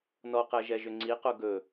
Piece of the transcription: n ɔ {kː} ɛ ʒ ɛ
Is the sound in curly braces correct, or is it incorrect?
incorrect